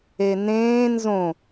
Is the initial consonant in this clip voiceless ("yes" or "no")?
no